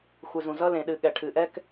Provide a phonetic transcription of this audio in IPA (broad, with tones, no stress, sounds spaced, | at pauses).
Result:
xʷ ɨ˩ z ũ˩ z ʌ˥ l ẽ˩ ɗ ɨ˩ ɠ ɛ˩ ʈʰ ɨ˩ ʔ ɛ˥ k